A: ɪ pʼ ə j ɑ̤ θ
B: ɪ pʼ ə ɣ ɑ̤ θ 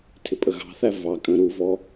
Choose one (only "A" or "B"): B